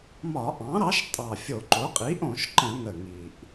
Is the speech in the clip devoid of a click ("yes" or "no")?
no